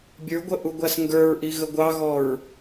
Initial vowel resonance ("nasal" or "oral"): oral